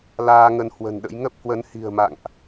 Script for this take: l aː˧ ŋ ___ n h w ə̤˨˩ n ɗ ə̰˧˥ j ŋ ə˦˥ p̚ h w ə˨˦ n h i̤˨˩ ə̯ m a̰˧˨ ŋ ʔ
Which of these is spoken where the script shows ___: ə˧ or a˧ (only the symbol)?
ə˧